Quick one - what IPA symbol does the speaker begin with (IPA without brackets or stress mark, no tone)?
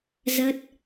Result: z